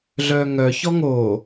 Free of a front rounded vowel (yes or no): no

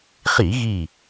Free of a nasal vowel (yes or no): yes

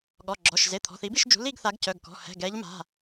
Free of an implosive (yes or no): no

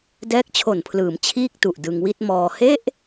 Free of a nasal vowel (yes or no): yes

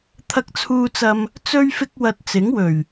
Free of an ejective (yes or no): yes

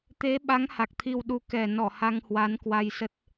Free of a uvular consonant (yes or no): yes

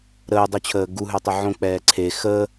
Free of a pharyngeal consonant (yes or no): no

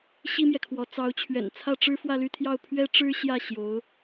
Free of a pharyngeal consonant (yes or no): yes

